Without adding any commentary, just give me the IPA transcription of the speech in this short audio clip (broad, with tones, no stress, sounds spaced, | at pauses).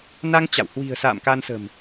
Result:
n a˧ ŋ t͡ɕ a̰˧˨ w h w i̤˨˩ ə̯ s a̰ː˧˨ m k a˧ n s ə̤˨˩ m